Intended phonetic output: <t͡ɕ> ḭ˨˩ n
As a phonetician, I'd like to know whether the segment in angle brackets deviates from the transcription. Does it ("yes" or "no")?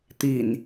yes